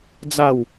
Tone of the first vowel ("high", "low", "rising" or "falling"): falling